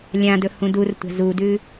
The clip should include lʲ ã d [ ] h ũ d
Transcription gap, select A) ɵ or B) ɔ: A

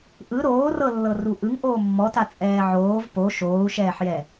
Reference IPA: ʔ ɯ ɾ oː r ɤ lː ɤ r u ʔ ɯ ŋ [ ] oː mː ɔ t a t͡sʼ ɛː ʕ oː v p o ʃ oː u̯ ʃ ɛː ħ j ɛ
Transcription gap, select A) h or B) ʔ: B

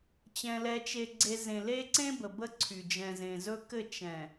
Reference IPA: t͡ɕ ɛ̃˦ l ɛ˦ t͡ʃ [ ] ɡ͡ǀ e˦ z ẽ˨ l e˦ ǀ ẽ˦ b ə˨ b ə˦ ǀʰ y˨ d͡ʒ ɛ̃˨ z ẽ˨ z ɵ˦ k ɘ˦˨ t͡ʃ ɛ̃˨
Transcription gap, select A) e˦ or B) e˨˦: A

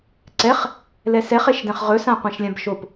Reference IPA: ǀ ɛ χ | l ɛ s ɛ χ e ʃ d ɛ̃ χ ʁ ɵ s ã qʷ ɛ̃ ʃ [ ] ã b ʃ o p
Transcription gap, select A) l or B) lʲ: B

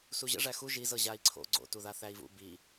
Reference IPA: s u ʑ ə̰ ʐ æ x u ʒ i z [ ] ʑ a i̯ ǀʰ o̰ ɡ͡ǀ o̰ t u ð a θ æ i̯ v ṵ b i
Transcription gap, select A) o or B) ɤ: B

